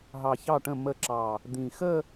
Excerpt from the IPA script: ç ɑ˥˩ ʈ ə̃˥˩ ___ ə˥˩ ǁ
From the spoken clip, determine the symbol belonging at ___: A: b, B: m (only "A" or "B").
B